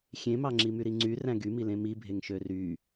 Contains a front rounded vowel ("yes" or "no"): yes